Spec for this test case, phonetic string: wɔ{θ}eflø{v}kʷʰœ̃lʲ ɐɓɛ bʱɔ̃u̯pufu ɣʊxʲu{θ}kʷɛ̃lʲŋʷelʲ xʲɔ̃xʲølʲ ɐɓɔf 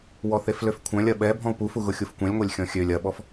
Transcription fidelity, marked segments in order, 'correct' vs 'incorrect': correct, incorrect: f, incorrect: f

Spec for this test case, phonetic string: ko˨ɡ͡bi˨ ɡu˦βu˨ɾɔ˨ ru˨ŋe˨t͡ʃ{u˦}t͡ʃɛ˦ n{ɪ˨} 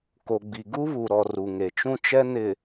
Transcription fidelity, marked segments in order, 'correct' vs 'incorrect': incorrect: ũ˦, correct

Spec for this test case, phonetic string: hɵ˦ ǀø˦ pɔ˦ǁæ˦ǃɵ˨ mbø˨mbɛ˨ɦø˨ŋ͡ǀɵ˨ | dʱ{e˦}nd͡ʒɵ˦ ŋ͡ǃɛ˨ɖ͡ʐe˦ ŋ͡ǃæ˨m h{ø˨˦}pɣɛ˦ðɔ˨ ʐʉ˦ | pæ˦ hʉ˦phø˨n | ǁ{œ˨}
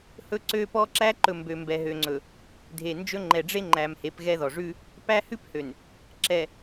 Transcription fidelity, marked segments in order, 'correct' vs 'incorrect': incorrect: e˨, incorrect: e˨˦, incorrect: ɛ˨

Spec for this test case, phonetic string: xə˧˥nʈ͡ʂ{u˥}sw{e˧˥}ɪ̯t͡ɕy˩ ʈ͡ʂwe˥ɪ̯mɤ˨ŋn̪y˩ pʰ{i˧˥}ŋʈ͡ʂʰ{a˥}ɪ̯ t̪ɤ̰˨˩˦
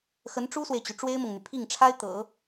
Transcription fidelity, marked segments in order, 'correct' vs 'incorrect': correct, incorrect: e˨, incorrect: i˥˩, correct

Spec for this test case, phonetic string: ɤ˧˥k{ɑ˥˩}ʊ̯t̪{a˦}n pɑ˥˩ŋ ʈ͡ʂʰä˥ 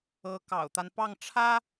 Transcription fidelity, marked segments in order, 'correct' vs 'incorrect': incorrect: ɑ̰˨˩, correct

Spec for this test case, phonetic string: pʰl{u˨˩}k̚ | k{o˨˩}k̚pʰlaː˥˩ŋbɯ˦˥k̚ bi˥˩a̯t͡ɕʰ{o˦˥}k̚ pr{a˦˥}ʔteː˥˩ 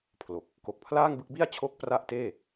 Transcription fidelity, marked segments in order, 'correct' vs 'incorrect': incorrect: o˨˩, correct, correct, incorrect: a˥˩

